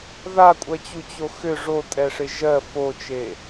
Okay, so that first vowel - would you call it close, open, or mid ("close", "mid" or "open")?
open